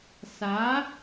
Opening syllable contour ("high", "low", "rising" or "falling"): rising